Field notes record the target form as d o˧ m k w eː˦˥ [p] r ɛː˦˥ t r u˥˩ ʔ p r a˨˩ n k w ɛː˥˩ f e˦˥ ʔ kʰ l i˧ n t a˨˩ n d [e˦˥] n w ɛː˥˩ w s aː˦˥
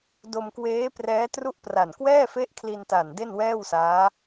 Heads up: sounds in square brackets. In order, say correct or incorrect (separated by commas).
correct, incorrect